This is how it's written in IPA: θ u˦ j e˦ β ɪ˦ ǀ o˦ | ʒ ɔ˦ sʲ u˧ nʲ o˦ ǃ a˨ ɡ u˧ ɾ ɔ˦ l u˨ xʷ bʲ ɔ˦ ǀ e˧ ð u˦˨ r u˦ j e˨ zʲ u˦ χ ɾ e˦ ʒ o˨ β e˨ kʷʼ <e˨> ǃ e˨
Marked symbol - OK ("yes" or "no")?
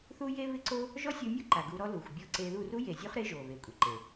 yes